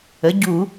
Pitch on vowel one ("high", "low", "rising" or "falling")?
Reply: rising